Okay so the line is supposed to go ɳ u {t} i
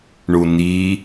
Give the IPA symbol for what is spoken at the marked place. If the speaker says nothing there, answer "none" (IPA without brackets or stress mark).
n